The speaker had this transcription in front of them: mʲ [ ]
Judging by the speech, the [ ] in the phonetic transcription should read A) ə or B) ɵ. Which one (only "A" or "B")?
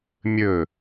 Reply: B